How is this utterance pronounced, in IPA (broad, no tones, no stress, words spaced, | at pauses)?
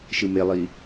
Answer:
ʃɯmelˠi